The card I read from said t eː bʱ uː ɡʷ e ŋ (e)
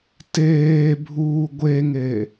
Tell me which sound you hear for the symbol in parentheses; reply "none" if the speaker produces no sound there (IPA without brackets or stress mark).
e